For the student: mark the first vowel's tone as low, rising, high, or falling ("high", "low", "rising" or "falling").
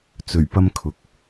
low